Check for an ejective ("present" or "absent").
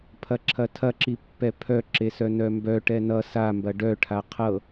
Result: absent